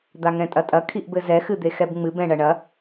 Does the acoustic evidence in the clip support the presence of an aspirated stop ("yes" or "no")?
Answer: yes